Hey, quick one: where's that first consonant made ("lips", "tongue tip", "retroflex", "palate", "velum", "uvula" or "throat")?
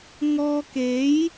velum